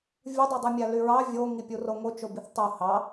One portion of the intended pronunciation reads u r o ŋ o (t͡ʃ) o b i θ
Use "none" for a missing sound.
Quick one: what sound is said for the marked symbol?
t͡ʃ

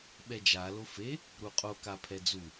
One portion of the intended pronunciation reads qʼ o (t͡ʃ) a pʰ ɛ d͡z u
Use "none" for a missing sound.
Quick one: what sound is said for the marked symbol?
k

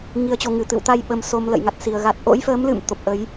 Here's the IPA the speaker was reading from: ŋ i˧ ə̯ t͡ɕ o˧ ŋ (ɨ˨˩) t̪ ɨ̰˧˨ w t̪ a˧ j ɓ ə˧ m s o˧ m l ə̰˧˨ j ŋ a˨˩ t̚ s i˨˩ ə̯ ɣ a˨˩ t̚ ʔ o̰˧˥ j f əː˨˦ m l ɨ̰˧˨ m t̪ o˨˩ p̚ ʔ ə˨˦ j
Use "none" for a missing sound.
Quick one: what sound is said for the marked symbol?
ɨ˨˩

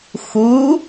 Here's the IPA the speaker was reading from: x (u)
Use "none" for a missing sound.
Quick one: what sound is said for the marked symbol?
u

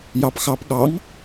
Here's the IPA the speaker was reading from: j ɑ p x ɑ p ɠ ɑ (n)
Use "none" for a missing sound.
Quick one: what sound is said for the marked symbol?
ŋ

